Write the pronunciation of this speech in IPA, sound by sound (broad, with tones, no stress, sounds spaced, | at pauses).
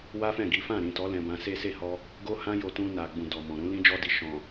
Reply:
w a˦ f ɛ̃˦˨ ɡ i˨˦ f ã˦˨ ɾ ĩ˨ t ɔ˨˦ l ɛ̃˧ b ã˧ s e˦ s e˦˨ h ɔ˧ | ɡ o˦ h ã˦ j o˧ t ũ˧ n a˨ ɡ͡b ũ˨ d ɔ˨ m ɔ̃˨ ɾ ũ˨˦ l ĩ˦ d͡ʒ ɔ˦ d i˧ ʃ ɔ̃˨